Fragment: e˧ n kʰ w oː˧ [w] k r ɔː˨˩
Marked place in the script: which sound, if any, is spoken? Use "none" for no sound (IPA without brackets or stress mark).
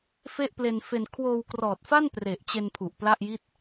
w